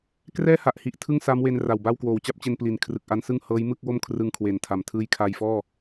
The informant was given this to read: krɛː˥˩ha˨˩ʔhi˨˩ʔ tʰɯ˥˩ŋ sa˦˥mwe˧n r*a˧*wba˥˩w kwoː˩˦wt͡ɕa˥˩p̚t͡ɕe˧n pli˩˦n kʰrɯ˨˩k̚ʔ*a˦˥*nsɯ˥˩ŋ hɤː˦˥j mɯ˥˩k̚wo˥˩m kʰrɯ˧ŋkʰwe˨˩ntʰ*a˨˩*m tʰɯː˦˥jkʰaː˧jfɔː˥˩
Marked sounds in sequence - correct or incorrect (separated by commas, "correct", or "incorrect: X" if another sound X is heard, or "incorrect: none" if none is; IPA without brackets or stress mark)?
incorrect: a˨˩, correct, correct